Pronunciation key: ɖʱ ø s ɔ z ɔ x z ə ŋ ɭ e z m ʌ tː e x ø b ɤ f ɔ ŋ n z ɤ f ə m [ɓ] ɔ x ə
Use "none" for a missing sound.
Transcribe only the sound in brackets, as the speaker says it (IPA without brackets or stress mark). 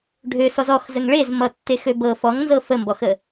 b